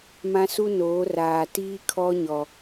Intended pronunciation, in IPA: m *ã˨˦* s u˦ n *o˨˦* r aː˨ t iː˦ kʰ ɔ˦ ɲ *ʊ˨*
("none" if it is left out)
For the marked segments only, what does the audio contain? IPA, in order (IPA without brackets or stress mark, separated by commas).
ã˦, oː˨˦, ɔ˨